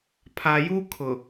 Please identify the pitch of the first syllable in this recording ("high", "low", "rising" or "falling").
low